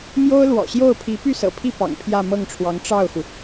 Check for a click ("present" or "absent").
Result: absent